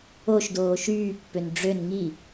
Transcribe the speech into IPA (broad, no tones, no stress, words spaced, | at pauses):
oʃdoː ʃyːpːøn ɖ͡ʐøn ŋi